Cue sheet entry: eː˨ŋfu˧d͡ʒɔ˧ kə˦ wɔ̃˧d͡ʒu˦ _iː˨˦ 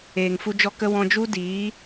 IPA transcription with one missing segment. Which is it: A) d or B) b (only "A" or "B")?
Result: A